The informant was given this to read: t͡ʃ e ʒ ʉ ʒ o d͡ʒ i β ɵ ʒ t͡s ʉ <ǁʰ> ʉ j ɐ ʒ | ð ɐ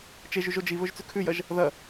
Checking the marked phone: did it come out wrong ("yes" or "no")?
yes